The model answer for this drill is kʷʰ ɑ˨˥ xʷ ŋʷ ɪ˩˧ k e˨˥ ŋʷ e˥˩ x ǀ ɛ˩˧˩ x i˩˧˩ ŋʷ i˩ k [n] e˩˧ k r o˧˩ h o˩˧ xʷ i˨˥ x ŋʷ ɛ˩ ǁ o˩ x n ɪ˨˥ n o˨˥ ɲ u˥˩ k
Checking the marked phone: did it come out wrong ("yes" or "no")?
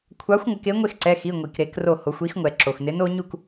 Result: yes